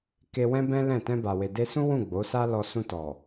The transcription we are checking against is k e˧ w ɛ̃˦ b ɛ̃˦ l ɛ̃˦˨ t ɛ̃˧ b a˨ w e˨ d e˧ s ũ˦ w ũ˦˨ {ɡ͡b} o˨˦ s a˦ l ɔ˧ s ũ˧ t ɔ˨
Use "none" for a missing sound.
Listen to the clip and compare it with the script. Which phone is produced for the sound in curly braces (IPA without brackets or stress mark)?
ɡ͡b